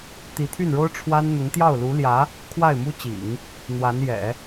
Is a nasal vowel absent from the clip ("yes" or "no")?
yes